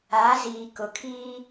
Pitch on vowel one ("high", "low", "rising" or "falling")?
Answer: rising